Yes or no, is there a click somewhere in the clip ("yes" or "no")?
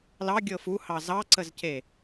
yes